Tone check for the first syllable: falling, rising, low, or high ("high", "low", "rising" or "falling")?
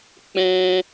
high